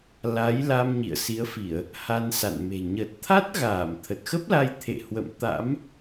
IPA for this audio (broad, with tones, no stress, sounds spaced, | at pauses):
l a˨˦ j l a˧ m ɲ ḭ˧˨ ə̯ s i˨˦ ə̯ f i˧˩˨ ə̯ | h a˧ n s a̰˧˨ n m e̤˨˩ ɲ ə˨˩ t̚ t̪ʰ a˦˥ t̚ ɣ aː˧˩ m t̪ʰ ə˨˩ t̚ x ə˦˥ p̚ l a˧ j t̪ʰ ḛ˧˨ h w ə̰˧˨ m t̪ a̰˧˥ m